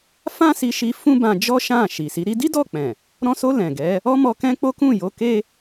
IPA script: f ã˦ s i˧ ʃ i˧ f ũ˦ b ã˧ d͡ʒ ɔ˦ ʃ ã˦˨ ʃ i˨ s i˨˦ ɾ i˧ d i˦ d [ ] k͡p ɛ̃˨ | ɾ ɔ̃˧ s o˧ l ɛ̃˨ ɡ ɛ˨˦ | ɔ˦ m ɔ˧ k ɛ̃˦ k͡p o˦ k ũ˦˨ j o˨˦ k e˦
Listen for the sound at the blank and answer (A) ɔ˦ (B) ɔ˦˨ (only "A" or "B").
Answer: B